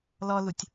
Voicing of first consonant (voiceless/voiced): voiced